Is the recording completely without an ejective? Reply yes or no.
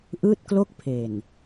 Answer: yes